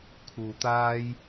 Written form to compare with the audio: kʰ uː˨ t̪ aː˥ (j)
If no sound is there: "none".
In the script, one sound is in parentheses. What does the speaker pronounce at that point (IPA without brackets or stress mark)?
j